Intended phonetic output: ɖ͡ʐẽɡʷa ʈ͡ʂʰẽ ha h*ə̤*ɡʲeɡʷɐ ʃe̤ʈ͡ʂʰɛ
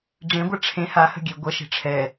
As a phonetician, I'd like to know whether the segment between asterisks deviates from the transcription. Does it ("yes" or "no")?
no